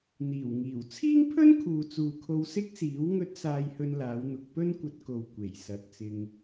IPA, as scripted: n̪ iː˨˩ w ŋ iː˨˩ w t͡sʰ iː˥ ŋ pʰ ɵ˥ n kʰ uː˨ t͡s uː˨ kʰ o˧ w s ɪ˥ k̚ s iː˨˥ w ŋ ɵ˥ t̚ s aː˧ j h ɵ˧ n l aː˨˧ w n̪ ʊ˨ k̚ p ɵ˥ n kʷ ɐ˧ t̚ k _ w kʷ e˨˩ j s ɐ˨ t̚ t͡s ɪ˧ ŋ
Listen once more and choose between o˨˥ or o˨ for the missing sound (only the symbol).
o˨